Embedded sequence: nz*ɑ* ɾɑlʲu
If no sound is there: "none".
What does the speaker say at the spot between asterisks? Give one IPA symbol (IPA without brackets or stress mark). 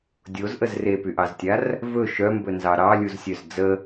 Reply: ɑ